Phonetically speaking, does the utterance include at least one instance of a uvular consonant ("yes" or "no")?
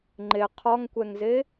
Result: yes